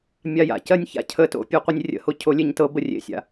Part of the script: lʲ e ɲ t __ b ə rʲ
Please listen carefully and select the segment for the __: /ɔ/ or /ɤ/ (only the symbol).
ɤ